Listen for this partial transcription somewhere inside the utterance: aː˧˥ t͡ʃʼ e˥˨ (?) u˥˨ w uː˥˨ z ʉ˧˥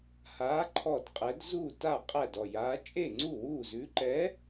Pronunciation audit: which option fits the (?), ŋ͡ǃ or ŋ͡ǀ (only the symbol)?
ŋ͡ǀ